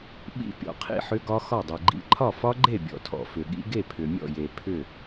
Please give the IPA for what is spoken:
ɓḭ˦˥pʲɔ̰˨qʰḭ˥˨ħʏ˦˥ ɡɒ˦˥xɒ˥˨dˤe˨ɡ͡ǃḭ˦˥ ǃʰɒ˥˨fɒ˦˥ɡ͡ǃe˥˨ bʲɔ̰˨tʰɔ̰˨fʏ˨ɠḭ˦˥ ɡe˥˨pʰʏ˨mʲɔ̰˥˨je˨ pʰʏ˥˨

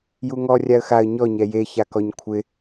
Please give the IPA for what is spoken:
juŋɔ rʲaə̯xaə̯ ɲɔ ɲɛje çakɔɲkʷʰɪ

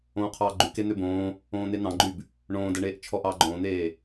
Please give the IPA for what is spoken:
õːqʰɑːɡ͡ǃy ken̪øbõː | õːn̪en̪ɑ̃ɡ͡ǃyb | ɳõːdɛɳeːʔ t͡ʃʰɔʔɑːɡ͡ǃõːn̪eː

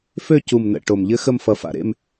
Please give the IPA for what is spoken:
fø˦˨cu˨˩mnə̰˨˩ ʈo˨˩mʎɘ˦˥ xə˦˨mfʌ˨˩fa̰˨˩ ɾḛ˦˨m

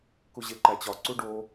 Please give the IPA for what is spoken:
kuʑeǃæt͡ɕɒ ǀuɖo

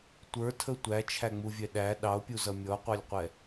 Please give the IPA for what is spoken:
tʷə˞tʰə tʷæt͡ʃʰæŋ͡muvʲɛ ɗæ ɗɑo̯pʲuzʌ mʲɔqʷɑlʲqʷɛ

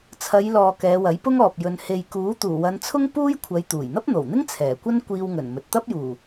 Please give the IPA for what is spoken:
t͡sʰɐ˨˧jlɔː˨ kɛː˨˧wɐ˨˥jpʊ˥ŋɔː˨p̚ jɵ˨n he˨jkuː˨˥ t̪uː˨˩wɐ˨˧nt͡sʰʊ˥ŋ puː˥jkʷʰɐ˨˧j t̪uː˨˩jn̪ɐ˥p̚n̪o˨˩wn̪ɪ˥ŋ t͡sʰɛː˨˩kʷɐ˥n kʷiː˧wŋɵ˨˩nmɵ˨t̚ t̪ɐ˥p̚juː˨˩

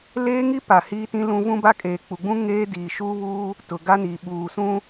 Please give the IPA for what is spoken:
leː˦ŋi˦pa˨ hiː˦tĩ˦lũ˦ vũ˦ba˦kʼeː˨ k͡pu˨ɡ͡bũ˦ ŋeː˦diː˨ʃuː˦βuː˦ | tʊ˨ ɡa˦niː˨ ɓuː˨sũ˦

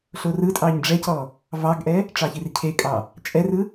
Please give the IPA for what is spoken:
ɬorɯtʼɑɲ ɖ͡ʐɛcɔ | vɑɡʔɛ | ʈ͡ʂɑçircʰekʼɑ | t͡ʃʼɛrɯ

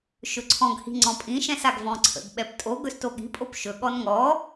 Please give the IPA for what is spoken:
ʃɵǀʰɔ̃ɡhi̤ ŋ͡ǀɔ̃pʼĩʃɛ̃s aɡvɔ̃ǀʰə̰ɡɓɛp tʼo ɡɵstoɠi̤pʼop ʃɵɠɔn ŋɔ

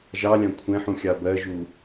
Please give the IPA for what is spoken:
ʒɑlʲɑ̃ kʷʰɛ̃ħũ xʲɑbɜʒu

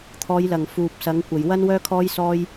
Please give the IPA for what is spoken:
t̪ʰɔː˨˧jlɐ˨˩ŋ fuː˨p̚ sɐ˨˧ŋkʷɐ˨j wɐ˥nwœː˥kʰɔː˥jsɔː˥j

